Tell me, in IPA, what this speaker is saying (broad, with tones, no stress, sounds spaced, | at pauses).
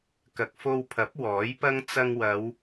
k ɐ˨ k̚ f o˧ w pʰ ɐ˨˥ p̚ w ɔː˨˥ j p ɐ˥ ŋ t͡s ɐ˧ ŋ w ɐ˨˧ w